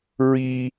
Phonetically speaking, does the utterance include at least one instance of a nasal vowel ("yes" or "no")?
no